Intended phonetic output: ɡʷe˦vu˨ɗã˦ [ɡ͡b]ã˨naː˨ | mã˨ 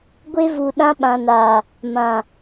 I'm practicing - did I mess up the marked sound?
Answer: yes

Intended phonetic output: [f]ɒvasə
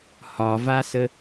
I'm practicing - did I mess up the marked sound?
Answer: yes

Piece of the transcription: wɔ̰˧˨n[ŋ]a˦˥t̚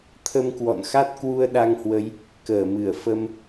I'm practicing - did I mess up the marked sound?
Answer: yes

